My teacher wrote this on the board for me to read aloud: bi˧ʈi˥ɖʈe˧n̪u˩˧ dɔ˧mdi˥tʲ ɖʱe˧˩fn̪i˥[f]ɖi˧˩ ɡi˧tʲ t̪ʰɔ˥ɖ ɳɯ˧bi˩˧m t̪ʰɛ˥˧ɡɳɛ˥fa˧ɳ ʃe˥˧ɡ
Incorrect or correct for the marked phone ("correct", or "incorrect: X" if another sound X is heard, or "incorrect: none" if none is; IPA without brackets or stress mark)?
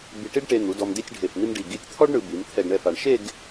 incorrect: m